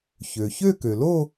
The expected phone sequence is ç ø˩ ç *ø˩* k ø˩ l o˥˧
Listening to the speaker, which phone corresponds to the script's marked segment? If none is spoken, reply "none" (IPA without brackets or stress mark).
ø˥˧